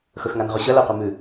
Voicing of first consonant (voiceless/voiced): voiceless